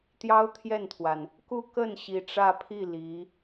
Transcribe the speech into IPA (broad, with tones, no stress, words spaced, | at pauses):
t̪jɑ˥ʊ̯ t̪ʰjɛ˥˩nt̪ʰwa˩n | ku˥˧kə˥˩n ɕi˧˥ʈ͡ʂä˥˧ pʰi˥˩ li˧˥